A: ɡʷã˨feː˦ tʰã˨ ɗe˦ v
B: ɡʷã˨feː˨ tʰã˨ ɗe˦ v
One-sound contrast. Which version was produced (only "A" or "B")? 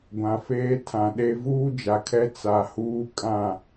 A